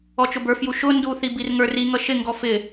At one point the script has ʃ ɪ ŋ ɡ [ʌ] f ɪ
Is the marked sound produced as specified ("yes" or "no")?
no